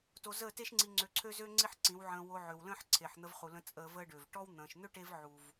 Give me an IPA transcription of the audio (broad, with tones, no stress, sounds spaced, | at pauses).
t o˧ z əː˦˨ t e˦ ʃ ŋ͡ǀ i˧ ŋ͡ǀ ø˧ ǀʰ ø˦ z øː˦ ŋ͡ǀ i˦ ħ ǀ ĩ˨˦ w ʕ ə̃ː˧ w o˧ ʕ ø˨ w l ə̃ː˦ ħ ǀʰ e˨ ħ n̪ ə˧ v χ u˨ l ə̃˧ t͡sʼ əː˧ v əː˦ ɖ øː˨ v ʈ ɔ˦ w n̪ ə̃ː˨ ʃ n̪ ø˦ ʈ e˧ v ʕ u˨ v